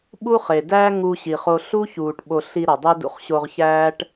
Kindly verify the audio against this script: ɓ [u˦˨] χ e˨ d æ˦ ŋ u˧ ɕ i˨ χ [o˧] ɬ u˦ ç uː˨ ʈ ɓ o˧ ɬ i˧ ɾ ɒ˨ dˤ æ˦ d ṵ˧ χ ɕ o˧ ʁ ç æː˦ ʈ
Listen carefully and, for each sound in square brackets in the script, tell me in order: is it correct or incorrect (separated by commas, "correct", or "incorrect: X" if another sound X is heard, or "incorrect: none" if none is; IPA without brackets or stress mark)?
incorrect: u˦, correct